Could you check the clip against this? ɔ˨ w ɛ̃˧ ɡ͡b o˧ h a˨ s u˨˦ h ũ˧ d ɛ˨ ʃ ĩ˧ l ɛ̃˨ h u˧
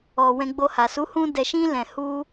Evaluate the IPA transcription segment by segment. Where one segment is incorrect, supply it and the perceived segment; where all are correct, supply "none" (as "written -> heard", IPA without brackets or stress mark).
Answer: none